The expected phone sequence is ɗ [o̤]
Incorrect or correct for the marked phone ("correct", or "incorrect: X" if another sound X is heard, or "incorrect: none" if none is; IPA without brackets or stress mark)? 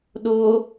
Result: incorrect: o